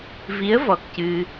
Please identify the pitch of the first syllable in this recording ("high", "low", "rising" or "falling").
rising